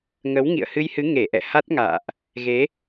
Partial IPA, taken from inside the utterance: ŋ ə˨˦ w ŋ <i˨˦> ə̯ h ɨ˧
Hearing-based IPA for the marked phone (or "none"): ḭ˧˨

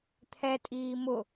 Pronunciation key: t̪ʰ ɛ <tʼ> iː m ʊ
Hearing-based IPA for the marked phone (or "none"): tʼ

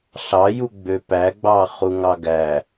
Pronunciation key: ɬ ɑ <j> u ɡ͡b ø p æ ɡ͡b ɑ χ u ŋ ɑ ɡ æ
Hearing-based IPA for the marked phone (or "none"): j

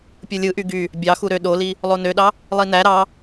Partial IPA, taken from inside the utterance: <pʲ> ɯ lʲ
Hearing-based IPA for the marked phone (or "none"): pʲ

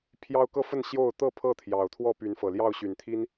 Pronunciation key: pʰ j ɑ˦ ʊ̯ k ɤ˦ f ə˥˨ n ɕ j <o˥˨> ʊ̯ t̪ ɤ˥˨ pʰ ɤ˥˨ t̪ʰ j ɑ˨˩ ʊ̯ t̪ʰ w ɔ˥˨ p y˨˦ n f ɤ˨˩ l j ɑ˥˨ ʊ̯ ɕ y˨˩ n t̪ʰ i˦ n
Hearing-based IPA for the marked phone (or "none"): o˥˨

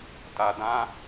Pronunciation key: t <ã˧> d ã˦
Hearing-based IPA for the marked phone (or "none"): a˧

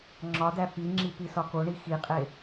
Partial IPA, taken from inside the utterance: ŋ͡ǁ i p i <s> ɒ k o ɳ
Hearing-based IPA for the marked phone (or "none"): s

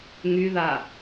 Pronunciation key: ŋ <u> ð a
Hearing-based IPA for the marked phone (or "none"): y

